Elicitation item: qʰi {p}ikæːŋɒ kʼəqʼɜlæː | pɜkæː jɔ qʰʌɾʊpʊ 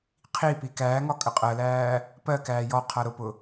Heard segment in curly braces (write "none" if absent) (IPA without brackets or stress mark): p